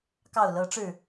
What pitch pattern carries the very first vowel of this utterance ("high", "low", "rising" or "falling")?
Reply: low